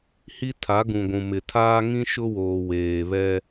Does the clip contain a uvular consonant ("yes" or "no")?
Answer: no